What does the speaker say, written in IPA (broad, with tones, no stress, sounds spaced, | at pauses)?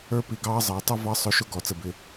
ə˞˥ p i˧˩ ɡ ɑː˥ zˤ əː˩˧ tˤ ʊ˥˧ v ɑ˥ sˤ ʊ˥˧ ʃ ʊ˥ ɡ ɔ˩˧ t͡s ə˧˩ b ɪ˧